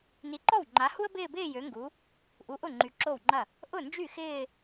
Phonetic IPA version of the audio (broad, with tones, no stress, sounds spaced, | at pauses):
n i˨˦ ǃ ɔ˥˩ w ŋ͡ǃ a˨˦ h u˥ ə̯ b ɪː˥˧ b ɪː˥˧ j ø˨˦ ŋ ɡ u˨˦ | ʔ u˨˦ ʔ ʊ˥˩ ŋ͡ǃ y˨ ǁ o˥˩ w ŋ͡ǃ ɐ˥˩ | ʔ ʊ˥˩ n d͡ʒ y˥˩ x ɪː˥˧